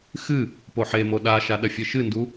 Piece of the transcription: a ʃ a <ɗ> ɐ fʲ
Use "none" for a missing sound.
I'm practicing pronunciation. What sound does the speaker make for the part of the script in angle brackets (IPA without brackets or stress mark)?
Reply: ɗ